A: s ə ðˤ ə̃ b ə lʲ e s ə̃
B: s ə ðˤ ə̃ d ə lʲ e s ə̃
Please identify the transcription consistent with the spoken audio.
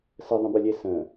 A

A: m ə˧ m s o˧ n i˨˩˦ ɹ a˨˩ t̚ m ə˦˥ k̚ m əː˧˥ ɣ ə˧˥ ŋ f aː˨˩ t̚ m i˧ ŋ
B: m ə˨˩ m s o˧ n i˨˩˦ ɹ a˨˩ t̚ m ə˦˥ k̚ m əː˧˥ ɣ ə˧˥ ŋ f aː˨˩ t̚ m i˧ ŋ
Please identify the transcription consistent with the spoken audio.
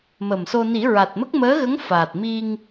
B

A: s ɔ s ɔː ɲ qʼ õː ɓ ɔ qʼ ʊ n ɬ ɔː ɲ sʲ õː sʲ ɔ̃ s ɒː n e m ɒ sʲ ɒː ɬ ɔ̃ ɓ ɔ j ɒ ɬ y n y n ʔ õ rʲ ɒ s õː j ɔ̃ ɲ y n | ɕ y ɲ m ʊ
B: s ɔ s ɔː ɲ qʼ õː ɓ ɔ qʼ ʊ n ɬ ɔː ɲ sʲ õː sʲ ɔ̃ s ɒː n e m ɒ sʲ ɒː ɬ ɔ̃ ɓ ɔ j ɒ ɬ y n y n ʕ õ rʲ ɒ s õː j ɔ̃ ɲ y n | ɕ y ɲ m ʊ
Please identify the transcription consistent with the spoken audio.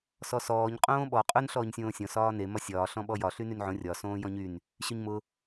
B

